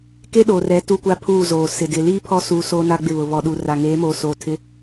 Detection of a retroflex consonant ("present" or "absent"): absent